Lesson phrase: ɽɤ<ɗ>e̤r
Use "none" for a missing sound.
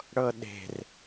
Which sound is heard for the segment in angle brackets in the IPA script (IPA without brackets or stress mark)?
ɗ